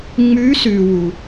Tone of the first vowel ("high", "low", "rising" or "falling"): rising